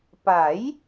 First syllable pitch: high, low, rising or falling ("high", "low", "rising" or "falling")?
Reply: rising